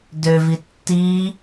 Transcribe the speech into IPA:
døvi tːi

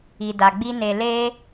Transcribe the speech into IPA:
i˨da˨ɡ͡bi˧ ne˨le˧

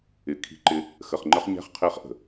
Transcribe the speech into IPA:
ɪ˨ kʰi̤˦ǃɪ˦ | xə˨χŋ͡ǃə˦χɲæ̤˦χ qʰɪː˦χʔə̤˨

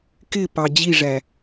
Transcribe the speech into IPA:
kɪpɑ d͡ʑiʐæ

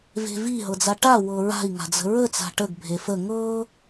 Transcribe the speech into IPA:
ve̤vi ɦɤd͡zaʈa wɤɹa̤i̯ ŋa̤d͡zə̤ɹə t͡sa̤ʈəɡ bʱefə ŋɤ

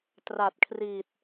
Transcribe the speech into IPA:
tra˨˩t̚kʰri˨˩t̚

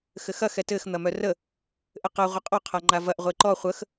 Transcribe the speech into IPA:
xɘxɐ xɛtɘx n̪ɐmœrə | ʔɘqɐ ʁʷɘqʼɔ qʰaŋ͡ǃavɐʔ ʁʷeǃɔ χʷəx

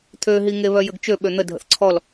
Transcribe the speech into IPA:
t̪ʰøɦiŋeβœ jəɡt͡ʃø ɓøn̪ədʱə̰θ ǀʰɔl

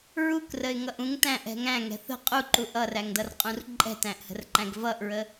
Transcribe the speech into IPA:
ɹukrəɪ̯ŋʌʔ ũŋtæ̃ʔɛ̤ ŋæ̃ŋɛ̤ θə̤ qʼuǃuʔ ʌræŋdʌrqʼũr ǃʼɛ̤tæ̃ʔhə̤rǃæ̃ɡ vʌʔɹə

